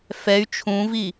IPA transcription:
fɛy̯ t͡ʃʰũvi

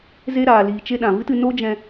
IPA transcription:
ze˦ ɾaː˨liː˨t͡ʃe˧ɗã˨ vɨ˦tɨ˧ no˦d͡ʒɛ̃˧

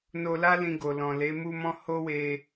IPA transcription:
no˧la˦ lĩ˧ɡo˨lɔ̃˨ le˨˦mu˦mɔ̃˦ ho˦we˧

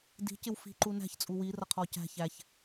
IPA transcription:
di̤cɪw fi̤ǃu næ̤çt͡sʼu wirʌqʰɔ cæ̤ç æç

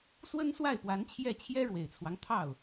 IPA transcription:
swə˥nswa˥˩ɪ̯pwa˧˥nt͡ɕʰjɛ˥˩ t͡ɕʰjɛ˥ɻwe˨˩ɪ̯t͡sʰwɑ˦ŋ t̪ʰɑ˥˩ʊ̯

